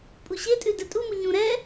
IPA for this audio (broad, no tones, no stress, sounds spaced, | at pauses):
pʼ u ɕ e tʼ ʉ d ɛ tʼ u m u ɲ ũ ɾ ɛ